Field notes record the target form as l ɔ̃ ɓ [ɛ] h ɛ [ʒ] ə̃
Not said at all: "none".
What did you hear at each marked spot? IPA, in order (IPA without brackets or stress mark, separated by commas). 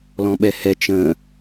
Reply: ɛ, t͡ʃ